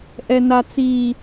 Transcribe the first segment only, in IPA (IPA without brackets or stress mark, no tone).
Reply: ʔ